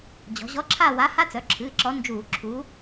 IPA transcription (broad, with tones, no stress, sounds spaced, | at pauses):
d͡ʑ ɔ̤˩˧ ʑ ɔ˨˥ ǁʰ a˦˨ w a˨˥ h a˦˥ t͡s œ˩˧˩ ǁʰ ɨː˩˧˩ ǁ ɔ˨˥ n d͡ʒ uː˧˩˧ ǁʰ u˨˥